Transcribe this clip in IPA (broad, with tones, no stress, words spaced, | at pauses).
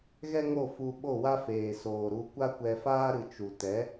ɣɛ˦ŋo˦˨fu˧ ɓo˦˨wa˦feː˨soː˨ ɾu˧ kʷa˦kʷɛ˧faː˦ɾɨ˨ t͡ʃu˨tɛ˨˦